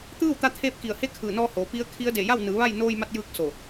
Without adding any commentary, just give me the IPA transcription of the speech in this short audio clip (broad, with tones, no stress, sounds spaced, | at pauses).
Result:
t̪ ɯː˥˨ w t̪ a˧ t̪ʰ eː˥˨ p̚ k i˧˩ ə̯ h e˥˨ kʰ ɯː˧˩ n ɔː˧ h oː˩˧ p i˧˥ ə̯ kʰ i˧˥ ə̯ d e˧˩ j a˥˨ w n ɯː˩˧ ʋ a˥˨ j n oː˧ j m a˧ t̚ j ɯː˧ k̚ s o˧˩